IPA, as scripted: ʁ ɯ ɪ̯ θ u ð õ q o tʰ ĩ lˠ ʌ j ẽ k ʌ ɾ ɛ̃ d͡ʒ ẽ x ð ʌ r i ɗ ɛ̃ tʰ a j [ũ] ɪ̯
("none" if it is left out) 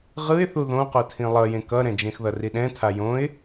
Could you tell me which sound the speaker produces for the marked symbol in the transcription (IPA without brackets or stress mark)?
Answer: õ